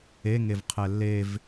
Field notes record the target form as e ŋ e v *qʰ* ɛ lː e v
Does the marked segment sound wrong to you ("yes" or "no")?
no